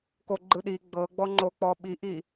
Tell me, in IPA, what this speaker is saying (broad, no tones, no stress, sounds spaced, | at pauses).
k o ɡ͡ǃ ɯ ɗ i ɡ͡b ɤ ɡ͡b ɔ ŋ͡ǃ o k͡p ɔ ɓ i ʔ i